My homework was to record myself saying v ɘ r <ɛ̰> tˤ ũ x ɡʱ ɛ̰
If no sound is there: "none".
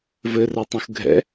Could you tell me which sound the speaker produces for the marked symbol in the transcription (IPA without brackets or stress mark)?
ɛ